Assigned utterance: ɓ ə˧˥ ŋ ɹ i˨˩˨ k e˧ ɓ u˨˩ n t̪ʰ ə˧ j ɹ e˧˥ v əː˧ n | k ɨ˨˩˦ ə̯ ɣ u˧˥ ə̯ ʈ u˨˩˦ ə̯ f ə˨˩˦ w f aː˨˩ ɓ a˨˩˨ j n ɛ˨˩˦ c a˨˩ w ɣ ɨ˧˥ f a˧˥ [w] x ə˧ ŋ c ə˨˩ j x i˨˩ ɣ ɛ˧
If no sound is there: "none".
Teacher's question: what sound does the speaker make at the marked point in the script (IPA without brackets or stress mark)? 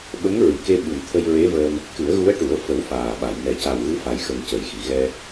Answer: j